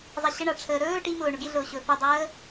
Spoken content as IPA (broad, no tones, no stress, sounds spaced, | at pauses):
zˤ a ɕ ə ɳ a ʈ͡ʂʰ əː ɾ ɵː ʈ i m ʊː ɳ ʊ ɡ i ɮ ʊː ɕ ɵ f ɵ dˤ əː